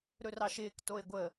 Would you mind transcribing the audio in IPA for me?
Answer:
ɾ ɵ r ɑ ʃ ɪː k t o e̯ ɡʷ ə

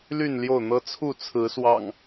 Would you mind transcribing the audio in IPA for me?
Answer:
l y˥˨ n l j o˥˨ ʊ̯ n̪ ɤ˦ t͡sʰ u˥˨ t͡sʰ ɹ̩˨˦ s w ɑ̰˨˩ ŋ

